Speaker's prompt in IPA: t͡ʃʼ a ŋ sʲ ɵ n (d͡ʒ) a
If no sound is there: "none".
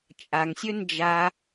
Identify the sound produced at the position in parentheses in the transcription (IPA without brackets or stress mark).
d͡ʒ